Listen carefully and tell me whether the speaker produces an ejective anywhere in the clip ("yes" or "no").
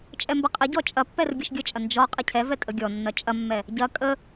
yes